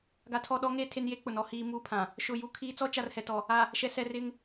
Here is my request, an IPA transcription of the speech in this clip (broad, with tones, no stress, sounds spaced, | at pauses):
ɡ a˨ tʰ ɔ˨ ɗ ɔ˨˦ ŋ e˦˨ tʰ e˦ n j e˦ k͡p ʊ˨ n ɔ˨ h iː˨ m uː˦ pʰ ã˨ | ʃ ʊ˨ j u˨ kʰ iː˨ t͡s ɔ˦ t͡ʃ a˨ r h ɛ˨ t ɔ˨ | a˨ | ʃ ɛ˨ s ɛ˨ r ɪ˦ ŋ